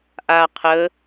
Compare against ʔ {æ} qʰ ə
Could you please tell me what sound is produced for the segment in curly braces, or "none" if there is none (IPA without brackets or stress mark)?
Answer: a